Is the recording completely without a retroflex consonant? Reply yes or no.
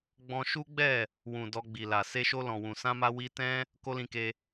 yes